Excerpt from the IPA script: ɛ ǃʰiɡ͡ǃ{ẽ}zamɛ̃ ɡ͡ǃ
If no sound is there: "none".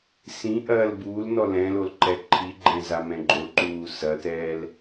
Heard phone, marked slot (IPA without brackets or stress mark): ɛ̃